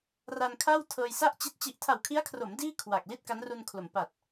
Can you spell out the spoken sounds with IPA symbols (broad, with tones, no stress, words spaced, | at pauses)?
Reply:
ra˧nkʰa˥˩w tʰɤː˧jsa˥˩ʔt͡ɕi˦˥t̚ t͡ɕi˨˩ʔtʰa˨˩wkʰi˦˥a̯kʰro˩˦m diː˥˩ kʰwa˨˩k̚ li˥˩t̚ka˦˥nru˧nkʰlo˩˦m pa˨˩t̚